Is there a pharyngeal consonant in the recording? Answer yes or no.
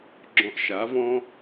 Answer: no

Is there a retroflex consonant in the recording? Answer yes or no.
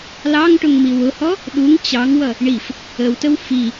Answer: yes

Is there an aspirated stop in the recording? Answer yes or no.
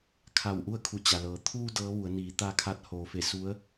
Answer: yes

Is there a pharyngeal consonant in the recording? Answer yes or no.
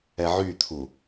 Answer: yes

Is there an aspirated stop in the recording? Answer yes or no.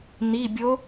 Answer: no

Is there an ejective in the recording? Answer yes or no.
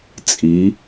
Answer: yes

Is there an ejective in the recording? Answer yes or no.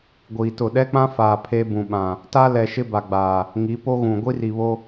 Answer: no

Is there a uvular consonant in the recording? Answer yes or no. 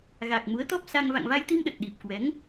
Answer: no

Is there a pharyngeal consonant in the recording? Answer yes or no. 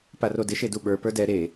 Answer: no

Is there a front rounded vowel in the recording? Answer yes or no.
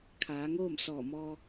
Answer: no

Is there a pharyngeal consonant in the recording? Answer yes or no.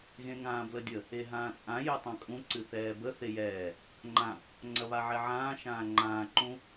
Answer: yes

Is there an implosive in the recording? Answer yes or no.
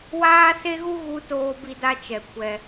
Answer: no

